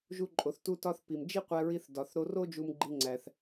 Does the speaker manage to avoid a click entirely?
no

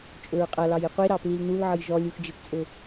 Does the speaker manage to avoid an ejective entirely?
no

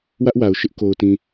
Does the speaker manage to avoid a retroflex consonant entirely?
yes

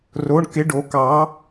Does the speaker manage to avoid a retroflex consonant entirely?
no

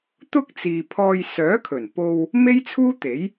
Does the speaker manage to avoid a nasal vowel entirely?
yes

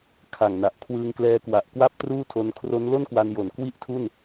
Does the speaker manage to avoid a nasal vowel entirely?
yes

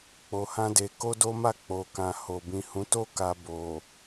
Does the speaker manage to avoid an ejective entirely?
yes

